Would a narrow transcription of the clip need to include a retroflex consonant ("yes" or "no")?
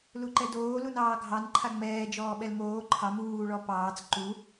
yes